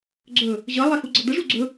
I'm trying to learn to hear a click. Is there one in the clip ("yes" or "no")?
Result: yes